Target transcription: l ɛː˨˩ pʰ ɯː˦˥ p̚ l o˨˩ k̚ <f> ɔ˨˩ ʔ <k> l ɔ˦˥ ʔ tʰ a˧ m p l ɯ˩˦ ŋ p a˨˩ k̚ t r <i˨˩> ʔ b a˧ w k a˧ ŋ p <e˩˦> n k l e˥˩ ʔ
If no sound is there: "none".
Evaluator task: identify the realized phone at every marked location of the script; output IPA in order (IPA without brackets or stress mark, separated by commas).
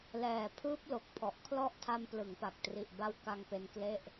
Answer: pʰ, kʰ, i˨˩, e˧